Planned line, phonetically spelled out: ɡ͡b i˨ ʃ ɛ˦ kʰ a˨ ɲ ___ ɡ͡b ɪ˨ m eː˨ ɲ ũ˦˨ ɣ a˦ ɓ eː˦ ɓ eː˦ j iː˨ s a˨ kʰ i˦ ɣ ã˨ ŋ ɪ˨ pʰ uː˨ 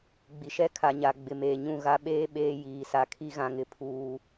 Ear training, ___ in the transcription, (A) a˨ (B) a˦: A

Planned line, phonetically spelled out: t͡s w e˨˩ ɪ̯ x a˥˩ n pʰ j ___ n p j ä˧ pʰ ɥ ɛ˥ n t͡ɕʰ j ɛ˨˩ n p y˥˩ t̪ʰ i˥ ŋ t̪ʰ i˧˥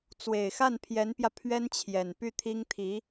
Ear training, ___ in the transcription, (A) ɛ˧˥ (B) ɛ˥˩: A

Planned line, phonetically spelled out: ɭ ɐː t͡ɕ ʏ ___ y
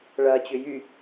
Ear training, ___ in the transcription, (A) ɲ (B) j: B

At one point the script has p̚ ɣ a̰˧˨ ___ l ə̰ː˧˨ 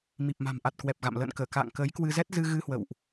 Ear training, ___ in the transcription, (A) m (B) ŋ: A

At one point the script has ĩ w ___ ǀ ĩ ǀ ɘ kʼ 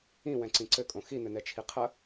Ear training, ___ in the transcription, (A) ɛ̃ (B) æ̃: A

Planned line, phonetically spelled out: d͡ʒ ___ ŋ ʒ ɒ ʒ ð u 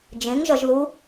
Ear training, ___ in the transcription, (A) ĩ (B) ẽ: B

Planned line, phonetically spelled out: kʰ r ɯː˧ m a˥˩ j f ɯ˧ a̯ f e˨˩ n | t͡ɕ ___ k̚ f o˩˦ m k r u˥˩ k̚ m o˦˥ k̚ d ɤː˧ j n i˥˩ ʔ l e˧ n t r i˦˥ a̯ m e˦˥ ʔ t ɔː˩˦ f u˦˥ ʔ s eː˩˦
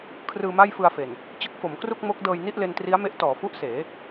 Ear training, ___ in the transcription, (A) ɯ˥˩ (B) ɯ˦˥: B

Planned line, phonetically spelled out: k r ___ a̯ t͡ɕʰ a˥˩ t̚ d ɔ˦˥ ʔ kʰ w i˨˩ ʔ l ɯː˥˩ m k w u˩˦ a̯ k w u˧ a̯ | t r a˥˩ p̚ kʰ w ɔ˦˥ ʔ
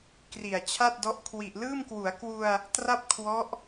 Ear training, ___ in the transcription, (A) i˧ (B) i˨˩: B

